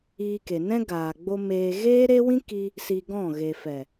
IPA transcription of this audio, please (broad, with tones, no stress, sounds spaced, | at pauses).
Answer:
iː˧ k e˨ n ɛ̃˦ ɡ aː˨ ɡ͡b o˧ m eː˧ ɣ eː˦ ɾ e˦ w ĩ˦ k i˧ | s i˧ ɡ ɔ̃˦˨ ɣ e˨ f ɛ˨